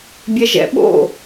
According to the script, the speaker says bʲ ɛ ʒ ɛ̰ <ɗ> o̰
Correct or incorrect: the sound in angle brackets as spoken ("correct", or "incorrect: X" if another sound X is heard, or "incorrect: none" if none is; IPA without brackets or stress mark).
incorrect: ɓ